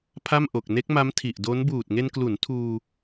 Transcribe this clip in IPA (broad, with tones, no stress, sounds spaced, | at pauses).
pʰ a˥˩ m ʔ o˨˩ k̚ n e˦˥ k̚ m a˦˥ m tʰ i˨˩ ʔ d o˦˥ n b uː˨˩ t̚ ŋ e˧ n k l u˩˦ n tʰ uː˧